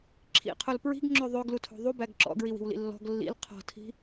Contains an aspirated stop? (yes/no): yes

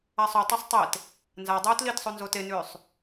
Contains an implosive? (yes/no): no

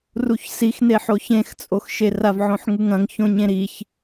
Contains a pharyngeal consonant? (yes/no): yes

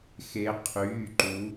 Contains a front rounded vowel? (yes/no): yes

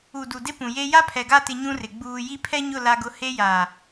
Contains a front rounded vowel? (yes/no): no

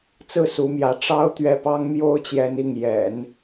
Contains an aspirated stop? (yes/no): no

